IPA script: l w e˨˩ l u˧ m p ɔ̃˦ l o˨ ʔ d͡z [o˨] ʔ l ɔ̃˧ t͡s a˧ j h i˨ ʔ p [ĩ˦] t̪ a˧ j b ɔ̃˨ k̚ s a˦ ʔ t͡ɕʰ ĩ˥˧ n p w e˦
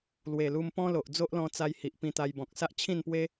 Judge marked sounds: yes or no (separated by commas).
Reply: no, no